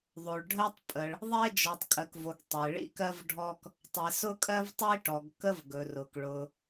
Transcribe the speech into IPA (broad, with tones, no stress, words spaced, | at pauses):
ðˤo˩ɭɖʱɜ˥tˤ pʼə˩ɭ | ðˤe˥ d͡ʒɔ˩tˤkʼɜ˩kvo˩ɡ tˤe˩ɭḭ˥kɜ˥vɖʱɔ˥k | tˤe˩ sʊ˥kʼɜ˥vtˤi˥ʈɔ˩ɡ kə˥v ɡɵ˩rʊ˩k ɭʊ˩